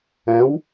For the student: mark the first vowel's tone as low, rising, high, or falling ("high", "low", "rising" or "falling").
rising